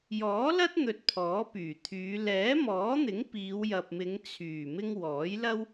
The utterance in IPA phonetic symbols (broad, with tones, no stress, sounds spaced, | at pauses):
j ɔː˨˥ l ɐ˥ t̚ n̪ ɵ˧ t̚ pʰ ɔː˨˥ p yː˨˩ t̪ʰ yː˨˧ l ɛː˨˥ m ɔː˨˥ n̪ ɪ˨˥ ŋ p iː˨˧ w j ɐ˨ p̚ m ɪ˨˧ ŋ t͡sʰ yː˨˩ m ɪ˧ ŋ w ɔː˨˥ j l ɐ˥ w